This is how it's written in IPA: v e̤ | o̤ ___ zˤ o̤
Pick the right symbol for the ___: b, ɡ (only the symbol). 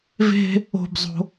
b